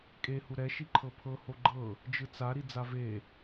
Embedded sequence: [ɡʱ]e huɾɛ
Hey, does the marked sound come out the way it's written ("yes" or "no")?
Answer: no